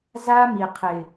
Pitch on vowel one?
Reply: high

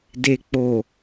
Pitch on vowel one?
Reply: low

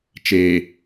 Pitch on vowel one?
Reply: low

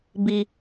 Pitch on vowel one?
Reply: low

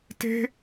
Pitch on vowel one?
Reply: high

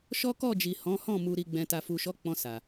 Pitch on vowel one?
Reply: high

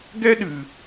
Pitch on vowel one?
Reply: high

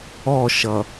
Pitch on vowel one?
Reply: falling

